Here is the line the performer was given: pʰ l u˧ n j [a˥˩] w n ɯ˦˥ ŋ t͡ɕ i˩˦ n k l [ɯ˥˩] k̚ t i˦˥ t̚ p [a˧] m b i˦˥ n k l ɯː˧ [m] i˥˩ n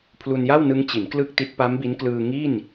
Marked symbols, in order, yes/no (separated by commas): yes, yes, no, no